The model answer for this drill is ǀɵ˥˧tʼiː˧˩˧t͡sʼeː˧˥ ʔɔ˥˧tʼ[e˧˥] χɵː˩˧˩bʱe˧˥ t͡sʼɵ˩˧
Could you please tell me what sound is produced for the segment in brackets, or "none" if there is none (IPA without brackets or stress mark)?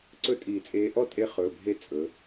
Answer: e˧˥